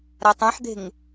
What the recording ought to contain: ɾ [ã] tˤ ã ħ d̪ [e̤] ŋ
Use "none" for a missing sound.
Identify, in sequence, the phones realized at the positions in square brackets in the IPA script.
a, e̤

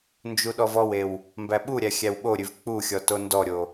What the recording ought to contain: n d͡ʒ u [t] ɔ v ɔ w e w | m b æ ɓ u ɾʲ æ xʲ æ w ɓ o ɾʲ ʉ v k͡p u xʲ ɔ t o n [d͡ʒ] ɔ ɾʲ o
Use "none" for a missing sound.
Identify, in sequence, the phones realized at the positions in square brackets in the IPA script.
ɗ, d

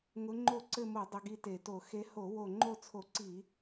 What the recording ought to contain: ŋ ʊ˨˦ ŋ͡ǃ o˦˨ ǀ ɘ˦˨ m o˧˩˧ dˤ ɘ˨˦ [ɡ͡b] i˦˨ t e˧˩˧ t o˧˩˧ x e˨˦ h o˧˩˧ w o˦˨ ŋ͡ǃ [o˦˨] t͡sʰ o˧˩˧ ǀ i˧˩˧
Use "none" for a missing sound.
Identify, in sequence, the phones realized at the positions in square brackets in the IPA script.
ɡ, o˦˨

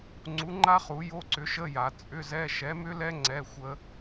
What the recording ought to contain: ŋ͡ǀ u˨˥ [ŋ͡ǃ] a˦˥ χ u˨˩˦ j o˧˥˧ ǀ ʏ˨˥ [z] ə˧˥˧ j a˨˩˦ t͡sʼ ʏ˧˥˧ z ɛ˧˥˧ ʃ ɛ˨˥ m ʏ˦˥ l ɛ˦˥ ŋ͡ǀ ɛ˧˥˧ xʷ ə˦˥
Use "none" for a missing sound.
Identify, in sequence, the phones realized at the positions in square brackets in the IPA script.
ŋ͡ǃ, ʃ

